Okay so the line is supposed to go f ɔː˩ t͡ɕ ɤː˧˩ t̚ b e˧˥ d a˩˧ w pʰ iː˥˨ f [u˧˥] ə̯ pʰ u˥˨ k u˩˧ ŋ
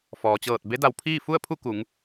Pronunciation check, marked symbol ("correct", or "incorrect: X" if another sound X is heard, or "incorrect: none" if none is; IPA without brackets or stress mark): incorrect: u˥˨